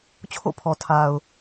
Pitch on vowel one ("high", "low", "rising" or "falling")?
falling